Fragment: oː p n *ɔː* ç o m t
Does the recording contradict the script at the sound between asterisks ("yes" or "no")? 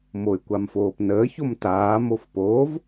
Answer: yes